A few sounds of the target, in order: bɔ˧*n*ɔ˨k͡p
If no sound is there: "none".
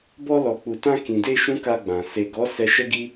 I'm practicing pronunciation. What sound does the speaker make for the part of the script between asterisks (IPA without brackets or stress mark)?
l